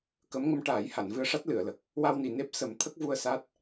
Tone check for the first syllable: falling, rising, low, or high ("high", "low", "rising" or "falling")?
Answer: rising